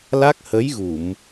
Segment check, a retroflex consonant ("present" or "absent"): absent